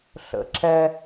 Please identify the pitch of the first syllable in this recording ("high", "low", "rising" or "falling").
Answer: low